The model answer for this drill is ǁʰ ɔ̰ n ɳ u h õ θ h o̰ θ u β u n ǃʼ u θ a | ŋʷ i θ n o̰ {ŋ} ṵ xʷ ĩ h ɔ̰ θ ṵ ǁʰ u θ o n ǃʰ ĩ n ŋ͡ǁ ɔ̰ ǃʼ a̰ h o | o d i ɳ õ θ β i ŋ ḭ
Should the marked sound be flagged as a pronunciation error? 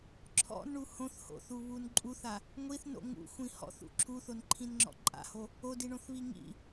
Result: no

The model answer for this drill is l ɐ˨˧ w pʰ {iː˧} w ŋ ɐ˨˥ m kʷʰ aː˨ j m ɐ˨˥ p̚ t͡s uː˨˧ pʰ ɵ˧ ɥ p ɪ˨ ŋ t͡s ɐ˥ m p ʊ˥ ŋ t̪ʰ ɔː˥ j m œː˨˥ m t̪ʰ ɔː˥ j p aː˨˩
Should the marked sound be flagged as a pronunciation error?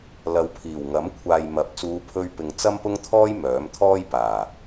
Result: yes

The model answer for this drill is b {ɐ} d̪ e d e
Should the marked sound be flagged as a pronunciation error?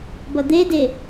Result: no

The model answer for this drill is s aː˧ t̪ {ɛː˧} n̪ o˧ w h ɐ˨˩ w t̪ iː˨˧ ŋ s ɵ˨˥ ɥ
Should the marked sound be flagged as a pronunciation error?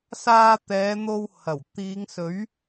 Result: yes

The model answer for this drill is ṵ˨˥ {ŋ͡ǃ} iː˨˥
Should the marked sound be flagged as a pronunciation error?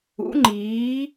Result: no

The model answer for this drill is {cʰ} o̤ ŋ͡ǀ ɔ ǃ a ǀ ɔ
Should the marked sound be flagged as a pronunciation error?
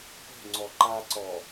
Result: yes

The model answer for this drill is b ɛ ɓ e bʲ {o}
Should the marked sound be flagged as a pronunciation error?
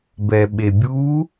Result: yes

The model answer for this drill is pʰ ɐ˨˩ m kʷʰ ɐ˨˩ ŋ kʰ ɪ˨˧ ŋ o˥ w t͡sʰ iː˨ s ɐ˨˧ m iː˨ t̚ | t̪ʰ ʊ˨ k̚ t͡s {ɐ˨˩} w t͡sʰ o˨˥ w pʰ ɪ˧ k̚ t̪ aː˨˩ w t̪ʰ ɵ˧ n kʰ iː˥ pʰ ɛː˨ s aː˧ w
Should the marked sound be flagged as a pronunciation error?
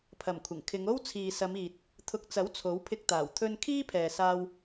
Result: yes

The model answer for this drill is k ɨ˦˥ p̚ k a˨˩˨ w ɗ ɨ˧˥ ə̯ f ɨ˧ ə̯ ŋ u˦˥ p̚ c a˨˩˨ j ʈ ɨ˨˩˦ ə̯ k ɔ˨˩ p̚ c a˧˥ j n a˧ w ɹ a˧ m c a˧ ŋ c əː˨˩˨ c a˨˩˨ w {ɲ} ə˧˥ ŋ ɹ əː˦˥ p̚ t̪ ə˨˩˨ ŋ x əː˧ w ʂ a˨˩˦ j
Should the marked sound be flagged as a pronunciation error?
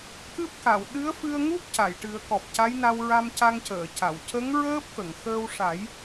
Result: yes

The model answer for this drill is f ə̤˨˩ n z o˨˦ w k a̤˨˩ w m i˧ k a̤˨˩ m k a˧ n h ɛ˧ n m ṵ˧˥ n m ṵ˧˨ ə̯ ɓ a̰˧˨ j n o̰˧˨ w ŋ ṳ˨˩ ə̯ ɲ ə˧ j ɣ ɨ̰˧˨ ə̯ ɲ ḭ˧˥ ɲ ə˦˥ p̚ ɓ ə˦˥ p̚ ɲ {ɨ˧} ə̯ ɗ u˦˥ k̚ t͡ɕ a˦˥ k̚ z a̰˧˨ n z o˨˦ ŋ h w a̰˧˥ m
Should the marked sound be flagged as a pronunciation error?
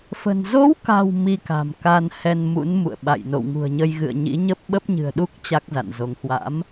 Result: yes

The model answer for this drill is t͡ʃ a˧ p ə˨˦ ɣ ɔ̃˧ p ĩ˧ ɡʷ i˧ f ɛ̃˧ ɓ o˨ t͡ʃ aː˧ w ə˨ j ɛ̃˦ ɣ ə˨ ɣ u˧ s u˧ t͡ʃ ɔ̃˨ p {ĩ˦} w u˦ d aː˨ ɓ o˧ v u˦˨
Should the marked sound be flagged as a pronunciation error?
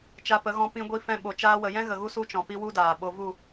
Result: yes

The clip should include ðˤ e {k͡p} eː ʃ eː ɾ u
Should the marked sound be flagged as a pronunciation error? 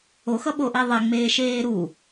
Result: yes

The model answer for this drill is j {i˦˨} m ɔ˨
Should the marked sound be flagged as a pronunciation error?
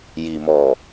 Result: yes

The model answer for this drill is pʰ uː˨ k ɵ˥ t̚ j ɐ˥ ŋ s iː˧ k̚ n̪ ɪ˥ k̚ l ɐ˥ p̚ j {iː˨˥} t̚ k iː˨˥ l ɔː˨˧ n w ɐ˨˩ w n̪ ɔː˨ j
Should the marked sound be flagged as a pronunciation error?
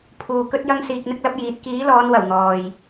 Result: no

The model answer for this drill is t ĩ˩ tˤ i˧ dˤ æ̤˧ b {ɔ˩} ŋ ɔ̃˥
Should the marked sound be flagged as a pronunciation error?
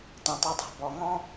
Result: no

